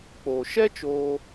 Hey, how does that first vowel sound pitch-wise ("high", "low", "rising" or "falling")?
low